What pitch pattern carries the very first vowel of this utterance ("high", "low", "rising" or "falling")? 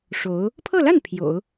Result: rising